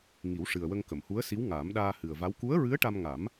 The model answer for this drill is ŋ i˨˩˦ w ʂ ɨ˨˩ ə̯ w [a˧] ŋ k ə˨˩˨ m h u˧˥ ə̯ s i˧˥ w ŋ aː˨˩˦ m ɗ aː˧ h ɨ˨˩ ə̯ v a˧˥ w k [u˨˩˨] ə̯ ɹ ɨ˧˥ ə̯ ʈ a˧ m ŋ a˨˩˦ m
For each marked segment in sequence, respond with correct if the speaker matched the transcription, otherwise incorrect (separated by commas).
incorrect, incorrect